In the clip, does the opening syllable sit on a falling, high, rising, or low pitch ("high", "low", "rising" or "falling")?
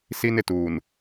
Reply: high